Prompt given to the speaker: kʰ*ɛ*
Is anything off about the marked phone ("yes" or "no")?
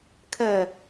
no